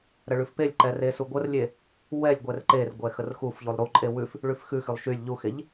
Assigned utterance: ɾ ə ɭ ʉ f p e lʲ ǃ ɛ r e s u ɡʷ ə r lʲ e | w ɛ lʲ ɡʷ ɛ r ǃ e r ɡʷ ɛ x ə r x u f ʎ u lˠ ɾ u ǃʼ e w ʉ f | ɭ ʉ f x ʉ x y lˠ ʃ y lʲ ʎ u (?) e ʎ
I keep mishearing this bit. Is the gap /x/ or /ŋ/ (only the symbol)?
x